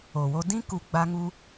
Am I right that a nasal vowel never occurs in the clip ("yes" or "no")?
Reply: no